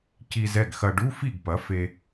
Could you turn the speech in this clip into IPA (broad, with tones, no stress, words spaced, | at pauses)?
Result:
ci˧zɛ˥˩ɡxɐ˧ɖu˧˥˧ fi˥˩ɡpɐ˩˥fe˧